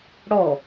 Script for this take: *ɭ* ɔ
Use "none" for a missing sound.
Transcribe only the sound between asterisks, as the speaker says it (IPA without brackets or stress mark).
ɽ